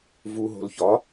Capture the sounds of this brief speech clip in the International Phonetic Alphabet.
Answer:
v u ɦ o̤ l ç ɒ

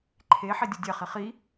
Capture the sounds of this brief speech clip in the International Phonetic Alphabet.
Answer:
ǃʰ e ħ e dʲ u dʲ ɛ χ i χ i

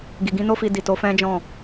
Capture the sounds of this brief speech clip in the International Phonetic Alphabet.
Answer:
ɡ i˨ ɡ ĩ˨˦ n o˦ f i˧ d i˨ t o˨˦ f ɛ̃˦ d͡ʒ ɔ̃˦˨

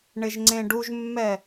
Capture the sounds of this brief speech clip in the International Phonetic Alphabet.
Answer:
ɳ ɪ ʒ ŋ͡ǀ ẽ ɖ u ʒ mː ɛ

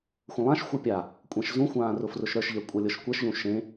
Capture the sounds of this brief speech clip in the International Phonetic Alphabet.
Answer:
xʷ ə̃ lˠ ã ʃ xʷ ɤ pʲ a | kʷʼ ɛ̃ ʃ z ũ xʷ ãː r ʊ f r ʊ ʃ ɾ ə˞ ʃ ʎ ɛ kʷʼ ɤ lʲ ɤ ʃ kʷ ɛ ʃ ʎ ũ ʃ ẽ

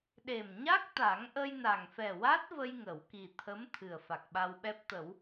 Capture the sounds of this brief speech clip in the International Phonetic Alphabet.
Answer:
ɗ e˨˩ m ɲ a˦˥ k̚ t̪ a˨˩˦ ŋ ʔ ə˧ j n a˨˩ ŋ f ɛ˨˩ w a˦˥ t̚ v ə˧ j ŋ ə˨˩˨ w k i˨˩ t̪ʰ ə˧˥ m t̪ʰ ɨ˨˩ ə̯ f a˨˩ k̚ ɓ a˧ w ɓ ɛ˦˥ p̚ t̪ ə˨˩˦ w

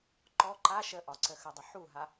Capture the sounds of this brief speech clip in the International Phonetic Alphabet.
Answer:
ǃ ɔ ǃ a ʃ ə ʔ ɒ ǀ ə x ə dˤ ə ħ u ɦ a

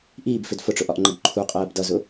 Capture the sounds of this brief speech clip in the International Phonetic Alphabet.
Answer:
ʔ iː b f ɪ d f ʊ ʈ͡ʂ ʊ ʔ ɒ ʔ ŋ͡ǃ ə ɡ ǃʰ u qʼ ɜː b d ʌ z ʊ

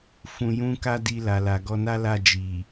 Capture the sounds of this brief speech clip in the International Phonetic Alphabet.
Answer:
f ũ˧ j ũ˦ k a˦ d i˧ l a˨ l a˨ ɡ ɔ˧ n a˦ l a˦˨ d͡ʒ i˨

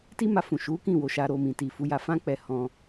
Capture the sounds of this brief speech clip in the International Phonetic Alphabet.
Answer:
t i˦ m a˧ f ũ˨ ʃ u˨˦ k ĩ˦˨ w o˧ ʃ a˧ ɾ o˧ m ĩ˨ t i˨ f u˨˦ j a˧ f ã˦ k͡p ɛ˧ h ɔ̃˦

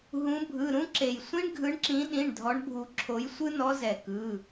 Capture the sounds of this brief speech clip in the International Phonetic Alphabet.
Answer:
ɦ ũ˨˦ bʱ ɯ˩˧˩ ɾ ũ˦ ǁ e˩ j sʷ ĩ˦ ɳ ɡʱ ɯ˨˦ ɳ ǁ ĩ˨˦ ɗ ĩ˩˧˩ ɳ dʱ ɔ˨˦ ɳ bʱ u˨˩˦ ǁʰ o˨˦ j sʷ ɯ˦ n ɔ˨˦ z ɛ˩ k ɯ˩˧˩

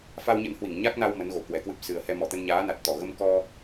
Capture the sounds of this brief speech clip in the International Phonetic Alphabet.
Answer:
f a˧ w ɲ ə̰˧˥ n h w i˧˩ ŋ ɲ a˦˥ k̚ n a˧ w m ə˨˦ n ɣ o˨˩ k w ɛ˨˩ k w ɨ˦˥ p̚ s ɨ˨˩ ə̯ h ɛ˧ m ɔ˧˩ t̪ ə˧ n ɲ aː˨˦ n a˨˩ t̚ t̪ ɔ˧˩ ɣ ə˧ m k ɔ˧

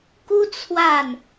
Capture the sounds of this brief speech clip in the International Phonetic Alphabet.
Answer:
k u˥ t͡sʰ w a˥˩ n

